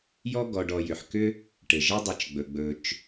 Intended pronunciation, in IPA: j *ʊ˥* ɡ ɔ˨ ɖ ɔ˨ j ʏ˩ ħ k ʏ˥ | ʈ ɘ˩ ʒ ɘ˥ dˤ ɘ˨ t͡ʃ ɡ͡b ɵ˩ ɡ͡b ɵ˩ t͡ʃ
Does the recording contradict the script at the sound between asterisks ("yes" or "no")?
yes